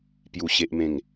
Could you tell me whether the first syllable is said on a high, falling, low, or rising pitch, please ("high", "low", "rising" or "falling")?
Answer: low